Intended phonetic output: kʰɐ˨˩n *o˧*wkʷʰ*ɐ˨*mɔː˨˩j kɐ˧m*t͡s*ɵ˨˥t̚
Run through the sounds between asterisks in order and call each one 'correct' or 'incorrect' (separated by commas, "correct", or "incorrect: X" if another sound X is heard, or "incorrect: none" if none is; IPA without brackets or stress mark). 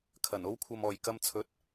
incorrect: o˥, correct, incorrect: t͡sʰ